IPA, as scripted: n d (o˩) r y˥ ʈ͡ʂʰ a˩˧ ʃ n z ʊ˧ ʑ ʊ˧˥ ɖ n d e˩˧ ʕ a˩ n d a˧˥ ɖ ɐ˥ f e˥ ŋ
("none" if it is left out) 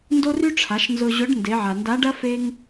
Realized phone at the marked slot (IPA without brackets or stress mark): o˥